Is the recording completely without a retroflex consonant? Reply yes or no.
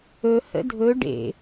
no